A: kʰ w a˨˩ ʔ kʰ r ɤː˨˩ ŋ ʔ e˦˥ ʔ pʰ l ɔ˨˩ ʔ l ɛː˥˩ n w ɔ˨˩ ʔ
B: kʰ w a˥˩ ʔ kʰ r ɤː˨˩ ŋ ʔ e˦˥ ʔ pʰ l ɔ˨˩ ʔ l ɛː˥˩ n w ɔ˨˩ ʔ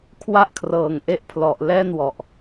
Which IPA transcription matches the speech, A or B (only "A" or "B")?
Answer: B